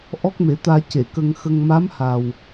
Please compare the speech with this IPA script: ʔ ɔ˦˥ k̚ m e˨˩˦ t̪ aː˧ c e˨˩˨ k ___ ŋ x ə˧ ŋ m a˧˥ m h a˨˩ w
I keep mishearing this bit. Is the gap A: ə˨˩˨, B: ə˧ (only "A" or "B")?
B